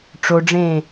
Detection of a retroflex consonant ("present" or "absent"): present